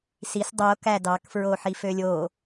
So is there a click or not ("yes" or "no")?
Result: no